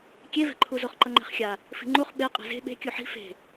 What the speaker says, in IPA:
kʲ e v ɛ̤ ǃʰ u z o χ ǃ ʌ ŋ͡ǃ ɛ̤ χ xʲ a | f i̤ ŋ͡ǃ u χ ɓ e qʼ e̤ z e̤ ɓ e̤ kʲ u ħ i̤ f e̤

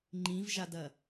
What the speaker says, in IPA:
ŋ͡ǃ ĩ v ʒ a d ɐ

